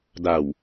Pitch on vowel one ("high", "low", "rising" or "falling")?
low